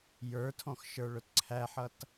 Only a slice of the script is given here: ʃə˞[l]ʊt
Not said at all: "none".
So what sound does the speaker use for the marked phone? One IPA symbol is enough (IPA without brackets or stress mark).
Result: ɭ